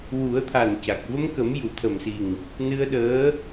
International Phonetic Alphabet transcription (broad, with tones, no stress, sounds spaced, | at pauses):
w u˨˩˦ ə̯ t̪ʰ a˨˩ n c a˨˩ k̚ v ə˧ m k ə˨˩˦ m j u˨˩˨ t̪ʰ ə˨˩ m s i˨˩ ŋ | n ɨ˧ ə̯ ɗ əː˧˥